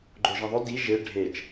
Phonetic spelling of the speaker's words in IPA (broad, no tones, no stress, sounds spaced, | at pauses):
ɡ͡ǃ o ʒ ĩ ðˤ ɵ d i ʒ e ɖʱ e t͡ʃ